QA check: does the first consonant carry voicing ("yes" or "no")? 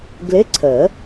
yes